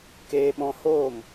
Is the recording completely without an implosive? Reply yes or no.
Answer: no